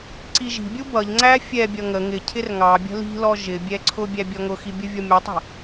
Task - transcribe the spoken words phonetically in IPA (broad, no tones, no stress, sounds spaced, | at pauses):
ǀ i ʒ i̤ bʲ u b ʌ ʎ ŋ͡ǀ æ fʲ ɛ bʲ ʌ ŋ ə ŋ ɪ cʰ ɪ r ŋ ɑ bʲ ə̤ l i̤ l ɔ ʒ ɪ bʲ ɛ ǀʰ ʊ bʲ æ bʲ ɔ ŋ ʊ x i bʲ ʊ vʲ ɔ mʲ ɑ tˤ ə̤